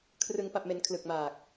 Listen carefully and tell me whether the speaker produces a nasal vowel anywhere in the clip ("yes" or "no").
no